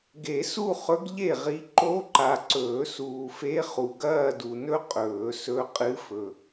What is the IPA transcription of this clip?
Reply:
ɡe˨˩˦su˥˧χɵ˧˥ɡ ʎe˥˩ʁi˧˥ ǃo˧˥ǃa˨ǀɵː˨˩˦ suː˨fe˧˥χu˨ ɡɐː˥˧du˨nɵ˥ qʼɵː˨˩˦sɵ˧˥ qʼɨ˧˥fɵ˨

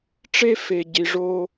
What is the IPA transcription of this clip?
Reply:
ʈ͡ʂe˦fe˨ɟi˨ʐo˦

